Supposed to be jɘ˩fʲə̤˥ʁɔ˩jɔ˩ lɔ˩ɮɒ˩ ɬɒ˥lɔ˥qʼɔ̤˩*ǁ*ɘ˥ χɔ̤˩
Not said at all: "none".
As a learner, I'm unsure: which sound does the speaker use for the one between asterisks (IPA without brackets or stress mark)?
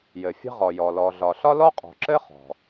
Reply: ǁ